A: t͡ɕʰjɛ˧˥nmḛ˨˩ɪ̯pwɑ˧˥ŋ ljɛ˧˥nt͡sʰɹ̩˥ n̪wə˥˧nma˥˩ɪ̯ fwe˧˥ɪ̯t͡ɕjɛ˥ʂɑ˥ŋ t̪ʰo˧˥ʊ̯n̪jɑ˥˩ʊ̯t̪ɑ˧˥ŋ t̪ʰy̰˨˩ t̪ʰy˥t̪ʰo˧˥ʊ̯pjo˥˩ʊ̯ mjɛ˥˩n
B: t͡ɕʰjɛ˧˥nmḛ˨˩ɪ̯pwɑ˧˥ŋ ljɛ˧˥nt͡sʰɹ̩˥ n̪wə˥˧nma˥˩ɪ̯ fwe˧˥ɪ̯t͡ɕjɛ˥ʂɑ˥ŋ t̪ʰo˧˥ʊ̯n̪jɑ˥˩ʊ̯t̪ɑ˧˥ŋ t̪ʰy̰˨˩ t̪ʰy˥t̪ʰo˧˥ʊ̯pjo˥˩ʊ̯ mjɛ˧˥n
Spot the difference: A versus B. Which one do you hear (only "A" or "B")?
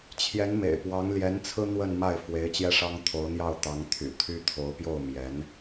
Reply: B